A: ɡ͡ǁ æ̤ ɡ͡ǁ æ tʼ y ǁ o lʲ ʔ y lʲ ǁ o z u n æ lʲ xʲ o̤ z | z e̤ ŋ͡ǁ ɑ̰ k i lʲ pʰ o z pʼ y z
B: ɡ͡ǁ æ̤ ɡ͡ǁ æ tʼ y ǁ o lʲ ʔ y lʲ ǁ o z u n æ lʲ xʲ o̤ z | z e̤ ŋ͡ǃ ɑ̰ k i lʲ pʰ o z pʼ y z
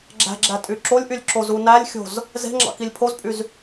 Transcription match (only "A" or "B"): A